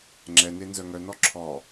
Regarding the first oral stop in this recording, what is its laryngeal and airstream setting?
click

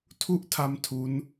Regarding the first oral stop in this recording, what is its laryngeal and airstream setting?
aspirated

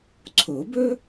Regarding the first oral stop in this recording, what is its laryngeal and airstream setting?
click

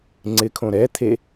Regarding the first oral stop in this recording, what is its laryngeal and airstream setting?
click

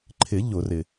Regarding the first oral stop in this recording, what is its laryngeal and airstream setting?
click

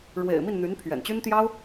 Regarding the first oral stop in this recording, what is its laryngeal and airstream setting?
aspirated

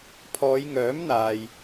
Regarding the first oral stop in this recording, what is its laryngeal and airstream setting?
aspirated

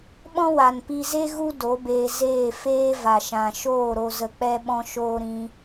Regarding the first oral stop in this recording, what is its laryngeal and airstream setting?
implosive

